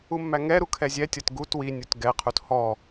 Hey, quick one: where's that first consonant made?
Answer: lips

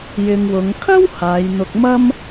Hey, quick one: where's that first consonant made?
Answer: palate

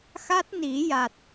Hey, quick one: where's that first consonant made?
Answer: velum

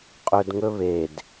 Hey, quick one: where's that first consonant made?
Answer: uvula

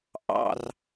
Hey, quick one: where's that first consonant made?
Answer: throat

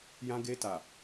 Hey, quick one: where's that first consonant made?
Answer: palate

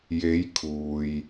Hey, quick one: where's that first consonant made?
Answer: palate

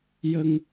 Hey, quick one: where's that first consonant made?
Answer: palate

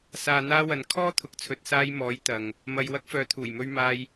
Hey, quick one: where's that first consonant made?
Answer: tongue tip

